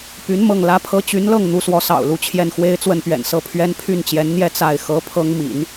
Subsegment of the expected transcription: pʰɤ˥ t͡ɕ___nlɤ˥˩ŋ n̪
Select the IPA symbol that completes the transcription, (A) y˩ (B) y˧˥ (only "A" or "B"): B